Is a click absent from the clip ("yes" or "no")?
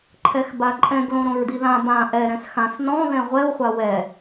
no